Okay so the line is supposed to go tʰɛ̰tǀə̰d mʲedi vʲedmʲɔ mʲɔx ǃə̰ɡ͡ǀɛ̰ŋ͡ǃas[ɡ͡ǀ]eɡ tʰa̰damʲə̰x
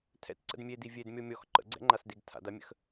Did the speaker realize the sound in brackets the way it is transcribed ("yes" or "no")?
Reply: no